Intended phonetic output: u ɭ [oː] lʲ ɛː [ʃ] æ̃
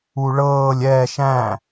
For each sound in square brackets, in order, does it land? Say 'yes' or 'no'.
no, yes

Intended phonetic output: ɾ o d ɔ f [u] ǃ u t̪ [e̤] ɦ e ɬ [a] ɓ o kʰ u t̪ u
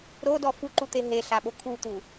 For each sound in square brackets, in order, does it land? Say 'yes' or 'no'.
yes, no, yes

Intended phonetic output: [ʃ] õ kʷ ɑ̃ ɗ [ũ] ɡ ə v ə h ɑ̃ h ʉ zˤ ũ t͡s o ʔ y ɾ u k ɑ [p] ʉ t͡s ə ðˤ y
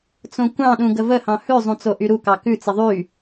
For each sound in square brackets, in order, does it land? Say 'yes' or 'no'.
no, yes, no

